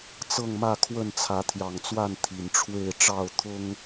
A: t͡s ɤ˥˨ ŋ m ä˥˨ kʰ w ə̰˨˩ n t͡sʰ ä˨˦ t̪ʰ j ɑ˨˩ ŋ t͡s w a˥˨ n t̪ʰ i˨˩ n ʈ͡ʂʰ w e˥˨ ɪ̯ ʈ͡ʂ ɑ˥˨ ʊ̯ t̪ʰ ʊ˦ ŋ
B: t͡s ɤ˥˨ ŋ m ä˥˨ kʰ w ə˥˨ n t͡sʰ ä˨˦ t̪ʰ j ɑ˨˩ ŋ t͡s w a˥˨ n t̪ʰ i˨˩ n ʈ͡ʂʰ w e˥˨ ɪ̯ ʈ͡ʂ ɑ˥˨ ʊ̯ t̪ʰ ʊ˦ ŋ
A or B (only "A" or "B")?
B